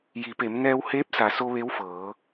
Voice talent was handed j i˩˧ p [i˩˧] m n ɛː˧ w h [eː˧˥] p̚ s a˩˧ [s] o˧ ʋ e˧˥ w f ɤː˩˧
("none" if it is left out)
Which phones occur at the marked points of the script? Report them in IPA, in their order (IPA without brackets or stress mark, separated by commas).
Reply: e˩˧, eː˧˥, s